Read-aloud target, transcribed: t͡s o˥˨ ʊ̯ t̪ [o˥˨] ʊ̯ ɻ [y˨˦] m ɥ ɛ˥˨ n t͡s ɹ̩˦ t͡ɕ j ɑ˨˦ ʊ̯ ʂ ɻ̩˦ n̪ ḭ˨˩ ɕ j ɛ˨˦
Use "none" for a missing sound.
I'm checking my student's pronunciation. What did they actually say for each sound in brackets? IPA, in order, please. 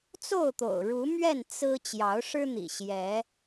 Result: o̰˨˩, u˨˦

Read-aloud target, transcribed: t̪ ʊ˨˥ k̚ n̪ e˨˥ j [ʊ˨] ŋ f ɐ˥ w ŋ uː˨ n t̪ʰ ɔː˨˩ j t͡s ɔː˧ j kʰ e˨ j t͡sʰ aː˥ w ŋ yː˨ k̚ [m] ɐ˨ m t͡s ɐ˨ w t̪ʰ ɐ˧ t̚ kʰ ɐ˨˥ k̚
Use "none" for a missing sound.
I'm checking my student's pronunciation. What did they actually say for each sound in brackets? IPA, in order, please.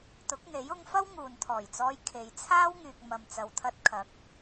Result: ʊ˧, m

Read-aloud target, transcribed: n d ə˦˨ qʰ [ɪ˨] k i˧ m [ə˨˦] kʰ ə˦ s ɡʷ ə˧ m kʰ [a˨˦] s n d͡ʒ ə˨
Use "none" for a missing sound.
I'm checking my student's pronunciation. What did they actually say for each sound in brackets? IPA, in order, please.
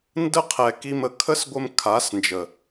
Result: ɛ˨, ə˨, a˨˦

